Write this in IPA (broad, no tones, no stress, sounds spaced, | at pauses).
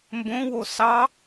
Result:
m b õ w o s ɑ